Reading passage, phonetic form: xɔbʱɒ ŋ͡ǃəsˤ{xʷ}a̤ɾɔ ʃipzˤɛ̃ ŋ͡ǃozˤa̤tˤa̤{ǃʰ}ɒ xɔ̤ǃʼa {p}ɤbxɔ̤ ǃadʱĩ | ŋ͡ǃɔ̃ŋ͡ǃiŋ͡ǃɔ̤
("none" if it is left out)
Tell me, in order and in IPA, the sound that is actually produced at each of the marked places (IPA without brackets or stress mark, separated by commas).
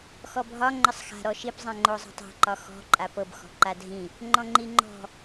x, ǃ, p